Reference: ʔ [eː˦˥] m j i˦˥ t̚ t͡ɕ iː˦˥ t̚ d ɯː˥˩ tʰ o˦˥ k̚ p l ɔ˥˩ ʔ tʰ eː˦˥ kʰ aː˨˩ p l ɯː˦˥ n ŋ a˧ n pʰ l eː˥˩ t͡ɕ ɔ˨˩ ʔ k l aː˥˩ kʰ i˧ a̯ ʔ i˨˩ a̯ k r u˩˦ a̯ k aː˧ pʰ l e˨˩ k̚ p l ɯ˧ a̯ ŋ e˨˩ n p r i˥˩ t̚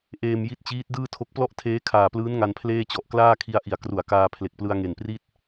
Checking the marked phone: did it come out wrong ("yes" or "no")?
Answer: yes